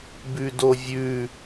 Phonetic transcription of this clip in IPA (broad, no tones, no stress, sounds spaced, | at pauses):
b ʉ d o vʲ ʉ